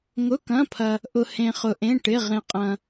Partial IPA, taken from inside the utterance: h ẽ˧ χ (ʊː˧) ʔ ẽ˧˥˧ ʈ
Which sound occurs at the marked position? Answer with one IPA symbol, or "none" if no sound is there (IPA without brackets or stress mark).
ʊ˧